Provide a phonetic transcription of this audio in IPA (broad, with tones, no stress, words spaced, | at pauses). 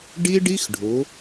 ɖi˦ɖi˦x ɖʱʊ˨˦